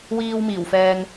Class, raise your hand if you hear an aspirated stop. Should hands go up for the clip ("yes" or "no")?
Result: no